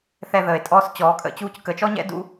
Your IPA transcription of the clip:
θ ɛ˧ ð əː˨ e̯ tʼ ɔː˧ s t͡ɕ ɔː˨˦ kʼ ə̰˧ t͡ɕ uː˧ c k ə˨˦ t͡ʃ ɔ˦ ɲ ɛ̰˦ d ṵ˦

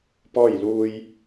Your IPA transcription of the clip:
p ɔː˥˨ j l uː˧ j

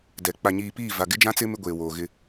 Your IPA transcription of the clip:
d ɛ˨ k͡p a˨ ɲ iː˨ p iː˦˨ v a˨ ɡ ɪ˦ d͡ʒ ã˦ t͡s ɪ˦ m ɪ˦ ɡʷ eː˨ w oː˨ ɣ ɪ˦

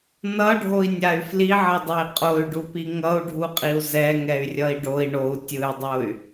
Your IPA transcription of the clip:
n ʌ ɖʱ o i̯ nʲ a y̯ f l i ʕ ʌ dˤ e i̯ qʼ o y̯ ɖ u p i ŋ ʌ u̯ ɖʱ u qʼ i u̯ z ɛ ŋ ɛ y̯ rʲ ʌ i̯ ɖ o i̯ ɳ o u̯ tʲ ɯ y̯ dˤ o y̯

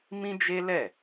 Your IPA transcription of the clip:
m ĩ˦ d͡ʒ e˦ l ɛ˦˨

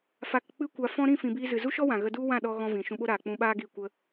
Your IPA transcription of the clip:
f a˧ k k͡p ɨ˦ kʷ a˧ f ɔ̃˦ ɾ ĩ˦˨ f ĩ˨ b iː˧ z ɨ˨ z u˦ ʃ ɔ˦ w ã˨ ɣ ə˧ d u˦ w ã˦˨ ɗ ɔ˧ ɣ ɔ̃˦ v ĩ˨ ʃ ũ˧ ɓ o˦ ɾ aː˨ k͡p ũ˧ ɓ aː˦ ɡ i˦˨ kʷ ə˦

